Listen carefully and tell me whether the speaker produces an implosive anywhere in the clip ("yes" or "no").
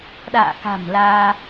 yes